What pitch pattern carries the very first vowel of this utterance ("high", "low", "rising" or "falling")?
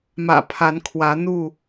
low